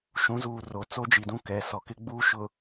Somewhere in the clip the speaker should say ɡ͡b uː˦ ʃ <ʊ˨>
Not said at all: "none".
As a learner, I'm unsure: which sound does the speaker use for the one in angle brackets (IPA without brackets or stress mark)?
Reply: ʊ˨